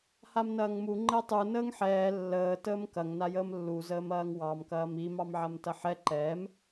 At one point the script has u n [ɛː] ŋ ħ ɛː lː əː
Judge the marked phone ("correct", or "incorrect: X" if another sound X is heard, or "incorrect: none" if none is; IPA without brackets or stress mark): incorrect: əː